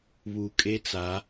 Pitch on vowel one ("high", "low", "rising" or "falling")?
low